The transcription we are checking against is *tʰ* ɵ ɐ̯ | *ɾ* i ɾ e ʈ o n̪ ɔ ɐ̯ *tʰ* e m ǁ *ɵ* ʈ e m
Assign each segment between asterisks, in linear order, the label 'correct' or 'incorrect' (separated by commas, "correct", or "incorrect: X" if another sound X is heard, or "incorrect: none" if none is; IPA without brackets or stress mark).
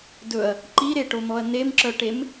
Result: incorrect: d, incorrect: ǃ, incorrect: n, incorrect: œ